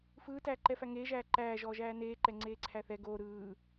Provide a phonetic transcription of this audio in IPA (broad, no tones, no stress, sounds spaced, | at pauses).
f ɯː t æː ǃ ɛ f æ ŋ eː ʒ æː ǃ æː ʒ ɔː ʒ æː n eː ǃ ɛ ŋ͡ǀ eː ǀʰ æ θ ɛ ɡ oː ɾ ɯː